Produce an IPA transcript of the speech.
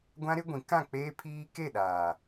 ɡʷ ã˦ ɾ ɪ˦ ɡʷ ĩ˨˦ k ã˦˨ k͡p eː˦ pʰ iː˦ k e˦˨ ɗ aː˨

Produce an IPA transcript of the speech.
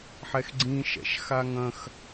ħ ɛ x ɡ͡ǀ ĩ ʃ ɛ̰ ʃ x a ŋ ɐ̃ x

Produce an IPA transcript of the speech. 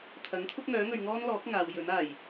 t̪ʰ ɐ˨˥ ŋ t̪ʰ ʊ˥ k̚ ŋ œː˨˥ ŋ ɵ˨ ɥ ŋ ɔː˥ n l ɔː˨˥ k̚ ŋ aː˨˧ w j ɵ˨˥ n aː˨˩ j

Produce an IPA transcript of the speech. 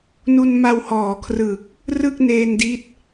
n u˧ n m a˧ w h ɔː˨˩ kʰ r ɯ˨˩ k̚ | r ɯ˥˩ k̚ n eː˧ n d i˦˥ t̚

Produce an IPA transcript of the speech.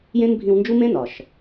j ẽ˥ n bʱ ĩ˦ w n d͡ʒ u˥ m ẽ˥ n ɒ˨ ʃ

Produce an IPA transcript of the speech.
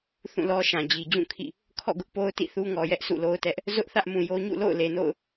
θ ũ˦˨ l ɔ˦ ʃ ã˨ d͡ʑ i˨ d͡ʑ ũ˦˨ kʰ ḭ˦˨ | kʰ ɔ̰˦˨ ɡ ʊ˦ ʔ p o˦ ʊ̯ t ḭ˦˨ θ u˦ ŋ ɔ˨ j ɛ˦ ʔ sʰ ṵ˦˨ l o˦ ʊ̯ t ɛ˦ ʔ | z ʊ˦ ʔ θ ä˦ ʔ m ũ˨ j o˦ ɲ ṵ˦˨ l o̰˦˨ ʊ̯ l e˨ n o̰˦˨ ʊ̯

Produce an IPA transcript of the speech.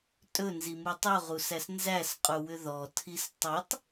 tʼ ɵ n z i m u tˤ u ʁ u s æ s n z æ s qʼ u w ʏ ð ɔ tʰ i s tˤ ɵ tˤ

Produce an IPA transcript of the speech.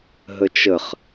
ɦ ə t͡ʃ ə χ

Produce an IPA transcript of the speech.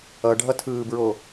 ʌ ɖʱ ʌ tʰ ɯː b ɹ o

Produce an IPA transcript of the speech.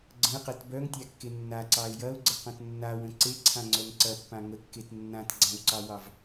ɡ͡ǀ ə̃ ɪ̯ q e t b œ ŋ tʲ a kː e nː a ǀ ɑ ɪ̯ j ɐ ʊ̯ ɡ͡ǀ ə q ə̃ t nː a w ə̃ ǀ e ǀʰ ã ŋ͡ǀ œ ŋ ǀ ɐ pː ã ŋ ə kː e t nː ã t ɡ͡ǀ ã w ǀ ɑ w ɑ v

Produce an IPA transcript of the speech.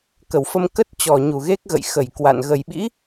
k ə˧˩ w f ə˧ m k ə˦˥ t̚ t͡ɕ ɔ˧˩ ɲ u˨˩ ɣ e˦˥ k̚ ɣ ə̰˧˨ j x ə˧˩ j k w a̰˧˨ n ɣ ə˨˩ j ɓ ḭ˧˥

